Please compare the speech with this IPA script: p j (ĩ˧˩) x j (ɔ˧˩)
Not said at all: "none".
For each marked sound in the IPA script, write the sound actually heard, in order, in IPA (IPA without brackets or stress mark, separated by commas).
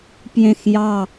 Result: ẽ˧˩, ɑ˧˩